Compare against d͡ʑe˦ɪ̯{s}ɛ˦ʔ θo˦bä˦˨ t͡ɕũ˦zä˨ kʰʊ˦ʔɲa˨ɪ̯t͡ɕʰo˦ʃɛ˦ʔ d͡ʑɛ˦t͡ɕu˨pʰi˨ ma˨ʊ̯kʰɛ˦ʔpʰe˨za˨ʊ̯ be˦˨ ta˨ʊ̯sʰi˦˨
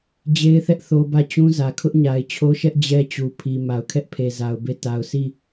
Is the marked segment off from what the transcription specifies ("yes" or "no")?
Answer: yes